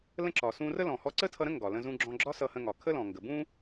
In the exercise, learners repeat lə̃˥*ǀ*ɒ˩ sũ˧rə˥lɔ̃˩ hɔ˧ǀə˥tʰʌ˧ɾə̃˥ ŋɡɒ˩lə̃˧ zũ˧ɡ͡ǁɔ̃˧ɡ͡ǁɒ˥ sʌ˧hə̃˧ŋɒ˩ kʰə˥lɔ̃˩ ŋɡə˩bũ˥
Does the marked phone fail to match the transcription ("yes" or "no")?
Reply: yes